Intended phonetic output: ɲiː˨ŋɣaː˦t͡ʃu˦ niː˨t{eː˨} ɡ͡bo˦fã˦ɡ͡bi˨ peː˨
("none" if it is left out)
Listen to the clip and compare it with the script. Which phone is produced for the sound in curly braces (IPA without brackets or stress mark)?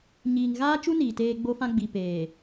eː˦